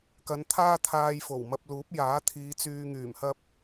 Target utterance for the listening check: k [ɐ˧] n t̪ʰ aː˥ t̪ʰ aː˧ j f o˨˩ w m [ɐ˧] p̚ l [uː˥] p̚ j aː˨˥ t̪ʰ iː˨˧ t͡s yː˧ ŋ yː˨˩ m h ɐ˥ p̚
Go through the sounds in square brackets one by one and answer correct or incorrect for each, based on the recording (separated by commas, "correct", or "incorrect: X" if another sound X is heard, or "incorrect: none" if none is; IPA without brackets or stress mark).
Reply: incorrect: ɐ˨˧, correct, incorrect: uː˨˥